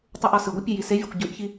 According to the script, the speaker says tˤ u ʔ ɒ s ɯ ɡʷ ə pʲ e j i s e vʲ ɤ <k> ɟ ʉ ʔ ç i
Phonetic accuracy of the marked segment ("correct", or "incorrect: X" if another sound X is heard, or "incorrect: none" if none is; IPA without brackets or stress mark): incorrect: kʷ